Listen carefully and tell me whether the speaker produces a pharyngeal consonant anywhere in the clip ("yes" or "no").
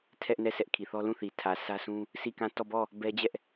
no